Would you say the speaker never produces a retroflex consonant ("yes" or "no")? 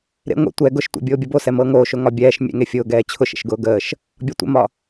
yes